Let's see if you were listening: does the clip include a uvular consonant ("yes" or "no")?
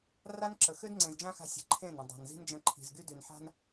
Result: no